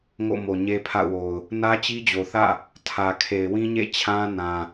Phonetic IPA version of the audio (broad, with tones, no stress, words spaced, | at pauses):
ŋo̰˦˨mo˨ ɲe˦pʰa̰˦˨ʊ̯wo˨ʊ̯ | nä˦t͡ɕi˦d͡ʑo˨θä̰˦˨ | tʰä˨kʰe˨ɪ̯wĩ˦ɲḛ˦˨ t͡ɕʰã˦nã˨